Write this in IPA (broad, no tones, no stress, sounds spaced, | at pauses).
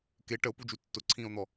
k e ʈ ə o̯ p u d͡ʒ u tː ʊ ǀʰ ĩː o̯ n̪ ɔ